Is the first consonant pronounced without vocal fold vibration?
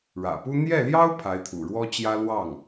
no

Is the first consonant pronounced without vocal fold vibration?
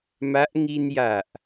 no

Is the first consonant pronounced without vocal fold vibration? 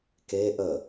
yes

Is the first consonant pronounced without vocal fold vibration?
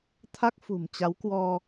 yes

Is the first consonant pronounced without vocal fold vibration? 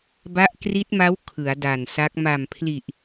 no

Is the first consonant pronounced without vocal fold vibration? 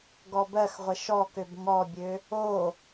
no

